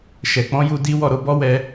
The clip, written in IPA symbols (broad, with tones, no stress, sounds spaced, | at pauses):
ʃ ɛ˨ k͡p ɔ̃˨˦ j u˧ d i˦ w ɔ˦˨ ɾ o˨˦ b ɔ˦ w ɛ˧